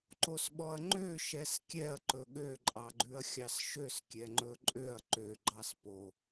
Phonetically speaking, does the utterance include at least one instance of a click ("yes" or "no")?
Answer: yes